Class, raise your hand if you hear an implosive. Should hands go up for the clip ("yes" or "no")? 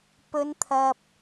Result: no